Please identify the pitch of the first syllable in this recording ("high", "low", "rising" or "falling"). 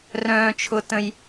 high